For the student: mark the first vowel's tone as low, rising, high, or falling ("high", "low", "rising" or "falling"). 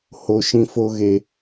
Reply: low